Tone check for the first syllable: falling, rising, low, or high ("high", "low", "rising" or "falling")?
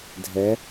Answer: rising